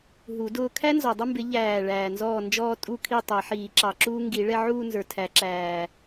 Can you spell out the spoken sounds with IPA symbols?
ɦu˨˩˦dʊː˥˧ kʰæ˥nzɔ˨˩dˤə˥˧mbɪ˨˩˦ ʎæː˨˩ ɭæː˨˩nzɔː˥˩nd͡ʒɔː˥˧ tʼu˥˩kʰi˥˩ tˤæ˨˩˦ħiː˨˩˦ǁɑ˨˩ǁuː˥ ŋɡi˨˩˦ ɭɛ˥˧ʕuː˥˧nzə˞˨˩ tʰæ˨˩˦ǁæː˨˩

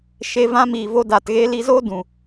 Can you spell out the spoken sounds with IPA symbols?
ʃe˧vã˧ miː˨vo˧daː˨tɣe˧ li˧zoː˦ dũ˨

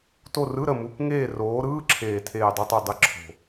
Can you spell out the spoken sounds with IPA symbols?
to˦˨rɯ˧˥˧ ɾə˦˨ mu˧˥˧k ŋeː˦˨roː˨˦ ɾɯː˧˥˧ǁʰeː˨˩ tʰeː˦˨dˤo˥tˤe˦˨ dˤe˦˨ǁʰo̤˨˩

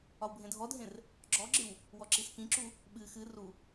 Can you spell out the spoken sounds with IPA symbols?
ɒwbʱẽdʱɔdʱẽr | ɡ͡ǁɔɡ͡ǁɨw | wɔǁiskĩǁu | ɓɨ xɨ ru

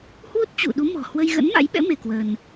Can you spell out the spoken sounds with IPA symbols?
hwu˦˥t̚t͡ɕṵ˧˨ɗu˨˦mɔ̤˨˩ hwə˧jɣə̰˧˥nma̰˧˥jɓɛ̰˧˥ me˧kwə˧n

